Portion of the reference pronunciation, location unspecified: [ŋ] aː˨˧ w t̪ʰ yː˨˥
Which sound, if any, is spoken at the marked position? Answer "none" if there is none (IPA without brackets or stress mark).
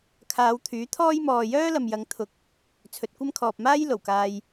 kʰ